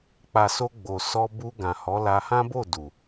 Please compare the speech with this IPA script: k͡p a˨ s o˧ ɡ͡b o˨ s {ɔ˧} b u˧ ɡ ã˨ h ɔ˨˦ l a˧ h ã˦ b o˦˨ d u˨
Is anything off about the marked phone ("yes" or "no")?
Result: no